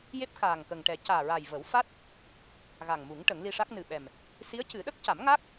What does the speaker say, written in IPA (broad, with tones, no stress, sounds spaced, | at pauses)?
j e˦˥ p̚ x aː˨˩ ŋ k ə˨˩ ŋ ʈ ɛ˨˩˦ c aː˨˩ ɹ a˨˩ j v ə˨˩˦ w f a˦˥ t̚ | ɣ a˨˩ ŋ m u˨˩˦ ŋ ʈ ə˨˩˦ ŋ l i˧ ʂ a˦˥ k̚ n ɨ˨˩ ɓ ɛ˨˩ m | s i˧˥ ə̯ c ɨ˨˩˦ ɗ ə˦˥ k̚ c a˨˩˦ m ŋ a˦˥ k̚